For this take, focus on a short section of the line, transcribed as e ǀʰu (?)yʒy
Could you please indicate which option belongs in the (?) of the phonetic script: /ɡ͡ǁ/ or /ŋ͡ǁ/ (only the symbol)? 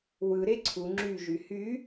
ŋ͡ǁ